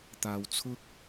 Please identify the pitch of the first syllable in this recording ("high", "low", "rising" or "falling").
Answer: low